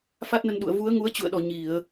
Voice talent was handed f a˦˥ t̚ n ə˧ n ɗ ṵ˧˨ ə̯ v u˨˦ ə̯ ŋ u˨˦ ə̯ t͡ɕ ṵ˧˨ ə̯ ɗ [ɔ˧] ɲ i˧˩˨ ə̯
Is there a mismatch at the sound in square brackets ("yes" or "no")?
yes